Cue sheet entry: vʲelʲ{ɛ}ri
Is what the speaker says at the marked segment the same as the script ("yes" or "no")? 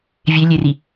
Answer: no